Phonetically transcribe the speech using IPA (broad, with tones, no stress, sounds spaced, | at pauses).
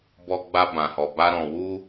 b ɔ˧ ɡ͡b a˧ b ã˨ h ɔ˨ b a˧ ɾ ɔ̃˨ w u˧